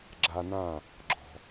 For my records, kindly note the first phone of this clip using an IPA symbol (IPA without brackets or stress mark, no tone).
ɡ͡ǁ